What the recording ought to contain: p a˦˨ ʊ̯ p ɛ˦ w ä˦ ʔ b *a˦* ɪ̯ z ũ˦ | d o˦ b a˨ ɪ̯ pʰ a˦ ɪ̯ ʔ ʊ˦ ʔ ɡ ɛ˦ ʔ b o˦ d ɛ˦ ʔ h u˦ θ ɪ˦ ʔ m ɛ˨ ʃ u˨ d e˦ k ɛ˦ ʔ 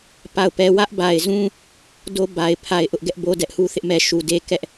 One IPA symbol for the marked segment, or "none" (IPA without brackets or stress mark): a˨